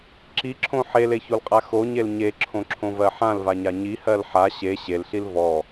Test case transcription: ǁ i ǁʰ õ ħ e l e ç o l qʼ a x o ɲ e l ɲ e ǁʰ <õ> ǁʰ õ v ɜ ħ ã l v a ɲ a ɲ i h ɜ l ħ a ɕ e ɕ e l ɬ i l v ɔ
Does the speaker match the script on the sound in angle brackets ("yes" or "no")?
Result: yes